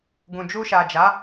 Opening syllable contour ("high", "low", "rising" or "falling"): low